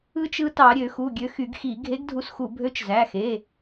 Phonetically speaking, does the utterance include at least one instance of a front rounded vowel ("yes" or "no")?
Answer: yes